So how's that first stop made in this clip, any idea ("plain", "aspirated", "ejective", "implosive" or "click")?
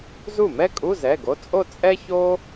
ejective